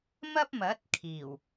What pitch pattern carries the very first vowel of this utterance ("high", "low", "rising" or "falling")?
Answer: high